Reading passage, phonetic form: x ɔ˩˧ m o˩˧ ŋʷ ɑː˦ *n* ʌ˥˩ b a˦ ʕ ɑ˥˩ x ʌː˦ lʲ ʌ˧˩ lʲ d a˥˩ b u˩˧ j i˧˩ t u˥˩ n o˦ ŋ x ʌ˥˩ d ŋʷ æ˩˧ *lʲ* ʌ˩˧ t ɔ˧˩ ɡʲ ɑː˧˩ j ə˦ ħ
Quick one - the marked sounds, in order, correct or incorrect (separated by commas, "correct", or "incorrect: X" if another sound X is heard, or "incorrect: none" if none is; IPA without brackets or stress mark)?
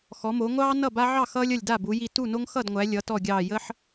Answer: correct, correct